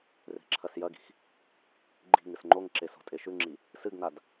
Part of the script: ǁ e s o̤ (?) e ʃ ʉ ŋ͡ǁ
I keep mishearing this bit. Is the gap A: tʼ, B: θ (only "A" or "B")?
A